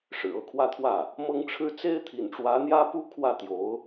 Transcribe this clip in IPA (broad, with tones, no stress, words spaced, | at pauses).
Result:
ʂɻ̩˨˩ɤ˥˧kʰwä˥˧t̪ʰwä˥˩ | mɤ˥ŋʈ͡ʂʰɻ̩˥ t͡se˥ɪ̯t̪ʰḭ˨˩nʈ͡ʂwä˧˥ n̪jä˥pu˥ kʰwä˥˩t̪jo˧˥ʊ̯